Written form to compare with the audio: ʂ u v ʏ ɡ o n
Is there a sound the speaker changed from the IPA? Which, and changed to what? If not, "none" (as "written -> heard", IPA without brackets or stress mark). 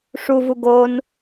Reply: ʏ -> u